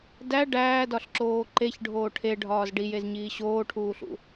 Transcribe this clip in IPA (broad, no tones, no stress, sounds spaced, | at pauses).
d æ ɖ æː d ɒ ɬ ǁ oː ǃ e ç ɖʱ oː ʈʰ e ɖʱ ɒː z ɖ i j e z ɲ iː ɕ oː ʈʰ uː ɬ ṵ